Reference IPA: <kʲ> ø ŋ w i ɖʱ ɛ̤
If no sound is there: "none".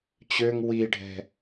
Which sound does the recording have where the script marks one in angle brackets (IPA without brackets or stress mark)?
t͡ɕ